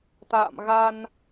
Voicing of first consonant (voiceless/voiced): voiceless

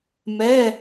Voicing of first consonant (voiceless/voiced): voiced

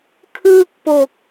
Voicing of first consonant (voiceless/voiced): voiceless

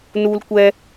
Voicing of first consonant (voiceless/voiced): voiced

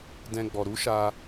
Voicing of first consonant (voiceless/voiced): voiced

